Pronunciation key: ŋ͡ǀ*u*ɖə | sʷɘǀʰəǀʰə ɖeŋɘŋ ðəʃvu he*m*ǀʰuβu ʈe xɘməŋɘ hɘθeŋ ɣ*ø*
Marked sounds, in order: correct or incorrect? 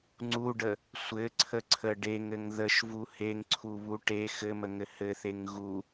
correct, incorrect, incorrect

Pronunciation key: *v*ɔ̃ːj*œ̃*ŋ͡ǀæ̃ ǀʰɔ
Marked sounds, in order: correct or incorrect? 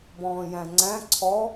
incorrect, incorrect

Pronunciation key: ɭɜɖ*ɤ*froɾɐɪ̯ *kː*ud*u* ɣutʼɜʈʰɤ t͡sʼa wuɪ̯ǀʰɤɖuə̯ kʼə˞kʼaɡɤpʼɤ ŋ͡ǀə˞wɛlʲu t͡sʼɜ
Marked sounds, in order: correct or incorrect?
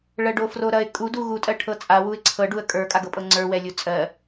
incorrect, incorrect, correct

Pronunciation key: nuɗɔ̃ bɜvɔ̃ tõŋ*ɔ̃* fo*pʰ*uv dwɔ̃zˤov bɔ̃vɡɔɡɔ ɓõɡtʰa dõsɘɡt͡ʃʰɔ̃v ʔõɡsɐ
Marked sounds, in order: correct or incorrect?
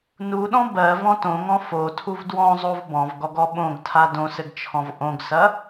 correct, incorrect

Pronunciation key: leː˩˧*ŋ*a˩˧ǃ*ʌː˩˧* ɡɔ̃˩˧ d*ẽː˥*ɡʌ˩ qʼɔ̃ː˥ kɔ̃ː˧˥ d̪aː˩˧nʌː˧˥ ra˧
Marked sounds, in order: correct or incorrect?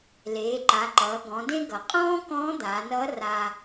incorrect, correct, incorrect

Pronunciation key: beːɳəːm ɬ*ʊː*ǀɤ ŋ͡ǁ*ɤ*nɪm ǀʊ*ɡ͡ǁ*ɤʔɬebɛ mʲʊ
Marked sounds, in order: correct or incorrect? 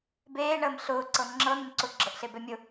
correct, correct, correct

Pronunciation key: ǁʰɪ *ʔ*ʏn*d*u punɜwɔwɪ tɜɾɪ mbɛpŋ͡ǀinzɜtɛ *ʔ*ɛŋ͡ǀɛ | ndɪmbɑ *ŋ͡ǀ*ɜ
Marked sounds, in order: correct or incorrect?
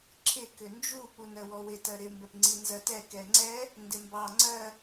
incorrect, incorrect, incorrect, correct

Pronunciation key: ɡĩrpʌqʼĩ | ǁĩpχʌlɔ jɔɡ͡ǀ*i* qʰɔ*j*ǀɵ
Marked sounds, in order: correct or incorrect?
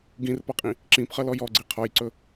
correct, correct

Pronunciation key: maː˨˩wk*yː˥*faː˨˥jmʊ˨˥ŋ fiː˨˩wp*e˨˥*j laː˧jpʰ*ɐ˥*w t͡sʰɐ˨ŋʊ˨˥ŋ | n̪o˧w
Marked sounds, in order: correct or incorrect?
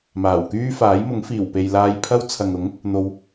correct, incorrect, correct

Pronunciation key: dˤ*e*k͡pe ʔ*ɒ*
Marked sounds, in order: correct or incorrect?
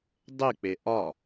correct, correct

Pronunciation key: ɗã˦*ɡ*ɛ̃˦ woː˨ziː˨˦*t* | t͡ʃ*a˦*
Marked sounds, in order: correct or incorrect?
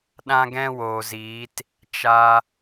correct, correct, incorrect

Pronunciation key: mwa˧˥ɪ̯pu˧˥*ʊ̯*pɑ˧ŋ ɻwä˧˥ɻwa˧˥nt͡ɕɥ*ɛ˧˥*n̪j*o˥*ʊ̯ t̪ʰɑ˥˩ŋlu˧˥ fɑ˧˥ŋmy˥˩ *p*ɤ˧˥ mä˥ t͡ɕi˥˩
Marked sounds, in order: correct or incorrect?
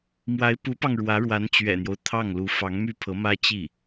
incorrect, incorrect, incorrect, incorrect

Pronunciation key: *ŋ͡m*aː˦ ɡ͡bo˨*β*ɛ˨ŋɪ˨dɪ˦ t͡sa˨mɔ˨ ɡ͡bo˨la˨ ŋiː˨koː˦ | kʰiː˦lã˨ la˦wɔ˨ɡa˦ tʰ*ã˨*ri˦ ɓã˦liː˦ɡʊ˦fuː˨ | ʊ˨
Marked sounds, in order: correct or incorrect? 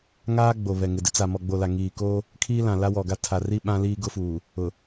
incorrect, correct, incorrect

